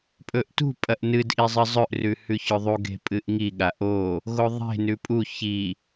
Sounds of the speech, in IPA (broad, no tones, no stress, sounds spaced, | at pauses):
pʼ ɵ ʔ t ṳ pʼ ɐ ʔ n ɨ d ʔ i zˤ ɨ zˤ ɵ ʔ r ʉ h ʉ ç ɵ ðˤ u ɡ e̤ pʼ ɨ ʔ ŋ i ɠ a ʔ o | ɣ o ðˤ e̤ n ʉ pʼ u ç i